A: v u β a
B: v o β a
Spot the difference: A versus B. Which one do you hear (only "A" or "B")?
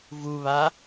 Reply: A